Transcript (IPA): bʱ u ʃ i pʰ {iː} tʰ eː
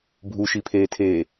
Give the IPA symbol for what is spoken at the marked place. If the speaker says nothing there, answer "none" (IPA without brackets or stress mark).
eː